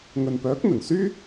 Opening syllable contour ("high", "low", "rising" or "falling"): low